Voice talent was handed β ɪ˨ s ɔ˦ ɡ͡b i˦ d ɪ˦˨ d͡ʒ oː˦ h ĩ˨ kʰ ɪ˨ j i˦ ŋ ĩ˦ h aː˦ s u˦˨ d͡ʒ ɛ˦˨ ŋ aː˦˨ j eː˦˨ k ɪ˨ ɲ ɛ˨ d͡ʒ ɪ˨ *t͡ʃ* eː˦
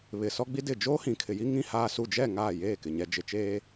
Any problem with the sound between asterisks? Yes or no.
no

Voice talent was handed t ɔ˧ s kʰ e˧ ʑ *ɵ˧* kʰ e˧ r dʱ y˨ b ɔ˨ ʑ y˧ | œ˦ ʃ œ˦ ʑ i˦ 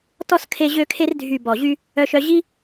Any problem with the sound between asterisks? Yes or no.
yes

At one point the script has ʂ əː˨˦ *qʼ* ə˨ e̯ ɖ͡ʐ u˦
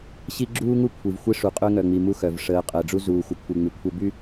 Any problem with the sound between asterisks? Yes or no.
no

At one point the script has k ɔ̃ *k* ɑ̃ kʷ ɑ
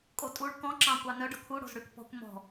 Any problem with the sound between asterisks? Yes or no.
yes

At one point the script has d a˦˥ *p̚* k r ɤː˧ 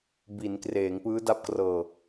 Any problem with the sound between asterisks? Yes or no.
no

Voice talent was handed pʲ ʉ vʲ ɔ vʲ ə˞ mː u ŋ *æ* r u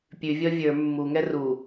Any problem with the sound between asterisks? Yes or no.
yes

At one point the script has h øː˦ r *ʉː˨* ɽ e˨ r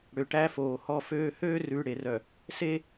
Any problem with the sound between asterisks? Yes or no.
no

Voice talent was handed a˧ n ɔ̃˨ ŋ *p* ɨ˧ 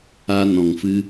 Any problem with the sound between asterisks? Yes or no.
yes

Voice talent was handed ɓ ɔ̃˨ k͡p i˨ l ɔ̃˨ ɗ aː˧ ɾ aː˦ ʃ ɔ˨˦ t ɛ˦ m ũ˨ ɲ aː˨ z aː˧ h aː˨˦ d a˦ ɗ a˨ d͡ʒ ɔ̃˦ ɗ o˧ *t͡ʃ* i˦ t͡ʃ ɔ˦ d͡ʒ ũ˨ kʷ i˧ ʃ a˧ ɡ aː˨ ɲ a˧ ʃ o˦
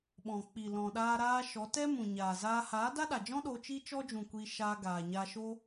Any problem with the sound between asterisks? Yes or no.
no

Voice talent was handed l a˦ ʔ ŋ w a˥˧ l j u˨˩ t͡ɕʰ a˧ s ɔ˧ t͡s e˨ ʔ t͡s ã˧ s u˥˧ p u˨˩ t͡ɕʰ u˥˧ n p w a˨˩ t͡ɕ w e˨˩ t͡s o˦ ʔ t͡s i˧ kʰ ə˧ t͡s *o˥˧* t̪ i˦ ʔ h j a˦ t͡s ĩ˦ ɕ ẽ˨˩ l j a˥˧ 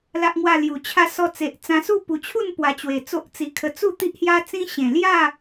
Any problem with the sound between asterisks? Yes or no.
yes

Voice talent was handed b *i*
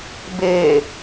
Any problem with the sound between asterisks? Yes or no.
yes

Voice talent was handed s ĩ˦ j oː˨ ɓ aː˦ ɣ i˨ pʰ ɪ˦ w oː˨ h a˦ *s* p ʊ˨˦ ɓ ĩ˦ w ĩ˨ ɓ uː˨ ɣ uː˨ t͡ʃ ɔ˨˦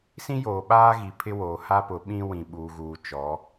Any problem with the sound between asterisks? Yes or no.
yes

